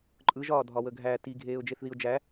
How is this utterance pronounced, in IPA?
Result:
ǃʼɯʒɒː dʱɒwəɡʱæ ti ɡʱeːʊ̯d͡ʒeθðiʊ̯d͡ʒæ

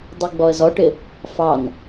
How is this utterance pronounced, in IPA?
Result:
dˤiɡ͡bɔə̯zɔʈɪ | fɑn

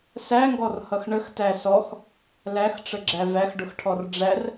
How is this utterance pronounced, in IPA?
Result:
sæŋɡɔrhʌx ɳəxtæ sɔx | læxʈ͡ʂəɡ͡ǁæ væxɖʊxʈʰɔr ɖ͡ʐær

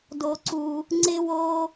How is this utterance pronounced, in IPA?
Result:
do˥ǀu˥ | ŋ͡ǀɪ˥wo˥

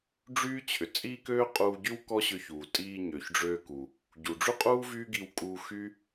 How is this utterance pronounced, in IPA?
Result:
ɖ͡ʐyː˥t͡ɕʰʏ˩ t͡sʼiː˥køː˥qʼuː˧ɟy˥w kɔ˥ɕʏ˧çuː˩ tʼiː˧ ɲø˩çɖ͡ʐøː˧ku˩ | ɟu˩ɖ͡ʐy˥qʼuː˥ vyː˥ɡi˧wkʼuː˧ xy˥

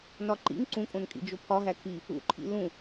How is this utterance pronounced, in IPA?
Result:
nɒǃḭŋ ǀũkʼõnkʼḭ d͡ʒopʰɒɦæ kʰi | ṵǃʰḭ lũ

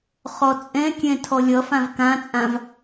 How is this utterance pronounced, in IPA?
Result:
χɔt͡sʼɛ̃kʲɛ̃ tʰɔlʲʌfãv kãt͡sʼãv

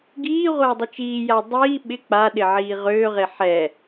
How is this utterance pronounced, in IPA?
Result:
ɡiːʁʷa dˤʊt͡ʃiːja dˤiː ɓɪ k͡paɗɪ ʕiːʁøːʁe ħɛ

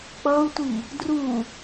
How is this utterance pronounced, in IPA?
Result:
k͡pʌu̯tʷi | dru

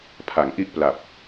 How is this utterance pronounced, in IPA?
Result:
pʰa˩˦ŋʔi˦˥ʔpla˨˩p̚

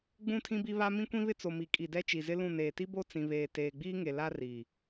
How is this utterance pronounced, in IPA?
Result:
ɡ͡bũ˦˨tʰĩ˦bi˦βa˦ mĩ˦kʷĩ˦βɪ˦ t͡so˨mi˨kʼi˨ dɛ˦t͡ʃi˨zɪ˦lũ˦˨ neː˨ti˦bo˦˨ t͡sĩ˨βeː˨ teː˨ɡ͡biː˦ŋe˨ la˦riː˨

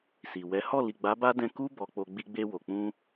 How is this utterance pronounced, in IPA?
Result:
si˨wɛ˨˦ hɔ˦˨li˨ɡ͡ba˨˦ba˦ dɛ̃˧ku˦ bɔ˧k͡po˧ ɡ͡bi˧ɡ͡be˧ wo˨k͡pũ˧

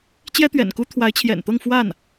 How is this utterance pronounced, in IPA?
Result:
t͡ɕjɛ˥t̪ɥɛ̰˨˩nku˥ t̪ʰwa˧˥ɪ̯t͡ɕʰjɛ̰˨˩nt̪ɤ˥˧ŋ fwa˥˩n

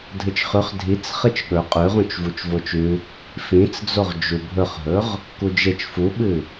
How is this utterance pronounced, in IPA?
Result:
dʱɨt͡ʃχʉχ dʱit͡s χɨt͡ʃɠɵ qʼʉʁũt͡ʃ vut͡ʃvot͡ʃʉ | fĩt͡sd͡zoʁ d͡ʒubʱɵχɦɵʁ | kud͡ʒet͡ʃ fuɓɨ

